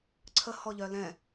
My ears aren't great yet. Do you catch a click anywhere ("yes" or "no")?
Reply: yes